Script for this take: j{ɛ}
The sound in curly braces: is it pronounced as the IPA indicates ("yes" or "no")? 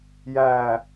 no